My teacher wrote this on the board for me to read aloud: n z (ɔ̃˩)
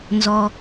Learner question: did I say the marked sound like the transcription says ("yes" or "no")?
no